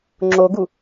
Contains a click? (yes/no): yes